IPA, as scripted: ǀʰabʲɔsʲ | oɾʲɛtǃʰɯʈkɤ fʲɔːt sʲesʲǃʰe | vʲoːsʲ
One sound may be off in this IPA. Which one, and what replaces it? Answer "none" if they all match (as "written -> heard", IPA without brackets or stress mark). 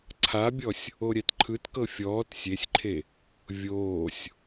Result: ʈ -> t